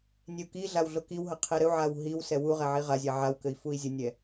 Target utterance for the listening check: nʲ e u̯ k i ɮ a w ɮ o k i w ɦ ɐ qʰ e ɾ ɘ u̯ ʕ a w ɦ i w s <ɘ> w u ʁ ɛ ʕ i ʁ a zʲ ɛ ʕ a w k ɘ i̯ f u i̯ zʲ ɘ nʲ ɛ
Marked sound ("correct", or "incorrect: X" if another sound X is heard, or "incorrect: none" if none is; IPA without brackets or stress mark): incorrect: ɛ